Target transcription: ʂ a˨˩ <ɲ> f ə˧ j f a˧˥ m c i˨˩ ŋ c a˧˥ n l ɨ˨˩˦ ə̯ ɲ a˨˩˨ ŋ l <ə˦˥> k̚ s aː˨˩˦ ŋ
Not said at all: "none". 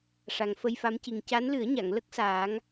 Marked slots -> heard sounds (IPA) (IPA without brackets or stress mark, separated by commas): ŋ, ə˦˥